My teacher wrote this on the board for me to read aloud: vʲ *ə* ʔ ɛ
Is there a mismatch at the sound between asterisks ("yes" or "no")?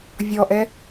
yes